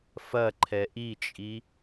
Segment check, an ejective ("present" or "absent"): present